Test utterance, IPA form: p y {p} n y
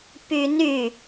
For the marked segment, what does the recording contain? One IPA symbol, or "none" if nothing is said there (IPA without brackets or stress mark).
none